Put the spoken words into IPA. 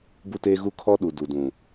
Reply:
b u˦ t eː˦ ɣ u˦ kʰ ɔ˦ ɗ u˨ d u˨ d ũ˨

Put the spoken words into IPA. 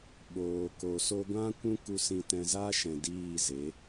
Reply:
ɓ oː˨ k o˨ s o˧ ɡʷ ã˦ kʷ ũ˦ k u˧ s ĩ˧ t ɛ̃˧ z aː˦ ʃ ɛ̃˨ d iː˦˨ z e˨˦

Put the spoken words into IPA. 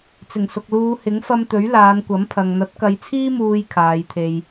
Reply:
t͡s ɪ˨˩ ŋ s ʊ˨ k̚ l uː˨˧ h ɪ˨˥ ŋ f ɐ˧ m t̪ ɵ˨˥ ɥ l aː˨˧ n kʷ ɐ˨˥ m pʰ ɐ˨ ŋ n̪ ɐ˨˥ t̚ k ɐ˨˧ j t͡sʰ iː˥ m uː˧ j kʰ aː˨˧ j t̪ʰ e˧ j

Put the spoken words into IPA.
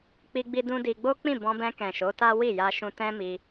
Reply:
k͡p i˧ ɡ͡b i˧ d ũ˦ d i˧ ɡ͡b o˦ k͡p ĩ˦˨ b ɔ̃˧ b ɛ̃˧ k ɛ̃˨ ʃ o˨˦ t a˦ w i˦˨ j a˧ ʃ ũ˧ t ɛ̃˦ m i˧

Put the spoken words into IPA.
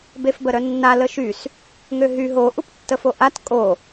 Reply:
b e f b ə ɾ œ nː a l ə ʃ y s | ŋ ø ɦ y ɦ o ʔ u p tː ə f o ʔ a t kʼ o

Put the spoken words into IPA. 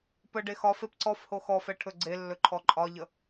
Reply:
p ə ɖ e x ɒ f e p ǀ ɔ f h o x ɔ f ɛ ʈʰ ɵ ɡ͡ǀ e lː ɵ ǃʰ ɔ ǃʼ ɒ ʎ ə

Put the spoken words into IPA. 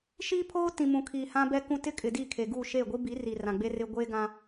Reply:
ʃ iː˦ pʰ oː˦ t ĩ˨ m ũ˨ kʰ iː˨ h ã˦ b ɛ˦ k ũ˦ t ɪ˦ kʼ ɪ˨ d i˦˨ kʰ e˨ ɡ u˦˨ ʃ eː˦˨ ɡʷ i˦ b i˨˦ r i˨ r ã˨ ɡ͡b e˦ r ɪ˦ ɡʷ eː˦ ɡ ã˦

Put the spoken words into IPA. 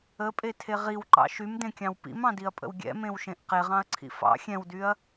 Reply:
ə pʼ e tʰ e ʁ i w ǃ ɑ̰ ʃ y m d ẽ kʲ ɑ̃ w p ḭ m ɑ̃ d i ɐ̯ pʼ ə̰ w ɡʲ ɛ̰ m ẽ w ʃ ẽ ʔ q e ʁ ɑ̃ ɐ̯ ǀʰ ḭ f ɑ̰ xʲ ɛ̃ w d y ɐ̯

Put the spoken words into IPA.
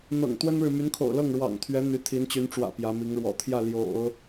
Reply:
n̪ ɤ̰˨˩ ŋ t̪ w ə˥ n ɻ ɻ̩˨ m y˧˥ n kʰ o̰˨˩ ʊ̯ l ɤ˥˩ ŋ ɻ w ɑ̰˨˩ ŋ t̪ʰ ɥ ɛ˧˥ n̪ y˧˥ t̪ʰ i˧˥ n t͡ɕ y˧˥ n ʈ͡ʂ w ä̰˨˩ p j ä˧˥ m i˧˥ ŋ ɻ w ɔ̰˨˩ t̪ʰ j ä˥˩ l j o̰˨˩˦ ʊ̯

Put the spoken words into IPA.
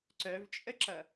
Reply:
ǀ œ v t͡ʃʼ ə ǁ ʌ

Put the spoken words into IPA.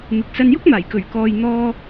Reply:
m ɪ˨ k̚ s ɐ˧ n j ʊ˥ k̚ m aː˨˩ j k ɵ˨˩ ɥ k ɔː˨ j n̪ ɔː˧

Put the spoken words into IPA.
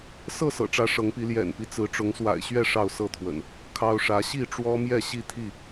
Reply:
s ɤ˥˨ s ɤ̰˨˩ ʈ͡ʂ ä˨˦ ʂ ɤ˨˦ ŋ p i˨˦ l j ɛ̰˨˩ n p i˦ t͡s ɹ̩˨˦ ʈ͡ʂ ʊ˨˦ ŋ s w a̰˨˩ ɪ̯ ɕ ɥ ɛ˥˨ ʂ ɑ˥˨ ʊ̯ s ɤ˥˨ t̪ʰ w ə̰˨˩ n | kʰ ɑ˦ ʊ̯ ʂ ä˨˦ ɕ i˥˨ ʈ͡ʂ w ɔ˦ m j ɛ˥˨ ɕ i˥˨ t̪ʰ i˥˨

